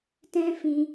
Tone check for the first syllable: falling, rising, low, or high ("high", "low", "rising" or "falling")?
high